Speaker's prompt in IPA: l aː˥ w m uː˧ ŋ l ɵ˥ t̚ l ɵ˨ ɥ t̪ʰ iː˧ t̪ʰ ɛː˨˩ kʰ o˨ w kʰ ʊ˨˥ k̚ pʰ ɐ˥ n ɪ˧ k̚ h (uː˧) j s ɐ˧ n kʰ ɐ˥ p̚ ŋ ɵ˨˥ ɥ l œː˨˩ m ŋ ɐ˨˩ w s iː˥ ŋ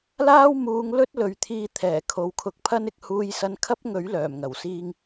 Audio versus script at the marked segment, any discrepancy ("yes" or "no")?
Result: no